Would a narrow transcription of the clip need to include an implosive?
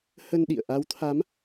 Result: yes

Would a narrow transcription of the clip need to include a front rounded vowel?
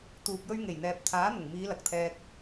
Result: no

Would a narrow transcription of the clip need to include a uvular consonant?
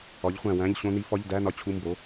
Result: yes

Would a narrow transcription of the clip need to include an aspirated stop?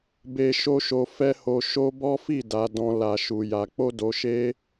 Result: no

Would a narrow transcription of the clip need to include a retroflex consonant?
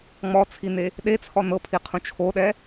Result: no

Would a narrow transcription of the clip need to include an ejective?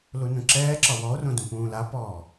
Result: no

